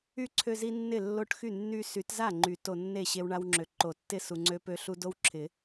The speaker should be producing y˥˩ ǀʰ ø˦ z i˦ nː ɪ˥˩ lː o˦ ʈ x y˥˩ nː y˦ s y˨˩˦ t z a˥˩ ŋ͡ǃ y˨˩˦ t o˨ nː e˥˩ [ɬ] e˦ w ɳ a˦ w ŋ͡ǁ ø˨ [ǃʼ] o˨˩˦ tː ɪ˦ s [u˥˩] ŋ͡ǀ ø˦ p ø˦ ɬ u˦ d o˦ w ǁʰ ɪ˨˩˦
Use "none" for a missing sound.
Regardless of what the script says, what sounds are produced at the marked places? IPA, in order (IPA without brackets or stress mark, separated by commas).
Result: ɕ, ǃ, u˨